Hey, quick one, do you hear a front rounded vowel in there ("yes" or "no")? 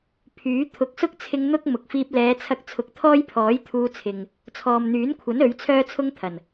yes